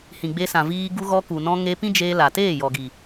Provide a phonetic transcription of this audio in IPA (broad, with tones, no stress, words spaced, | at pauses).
hĩ˨ɡ͡be˧sã˨viː˧ ɡu˧ɣɔ˧ ku˨nɔ̃˧ŋe˧ pĩ˦d͡ʒeː˧la˨teː˦˨ jɔ˨ɡi˨